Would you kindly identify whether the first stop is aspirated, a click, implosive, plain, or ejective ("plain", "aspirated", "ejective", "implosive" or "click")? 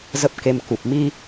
plain